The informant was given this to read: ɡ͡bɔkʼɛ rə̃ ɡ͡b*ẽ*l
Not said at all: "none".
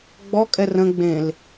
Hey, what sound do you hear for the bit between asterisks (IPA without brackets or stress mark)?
ẽ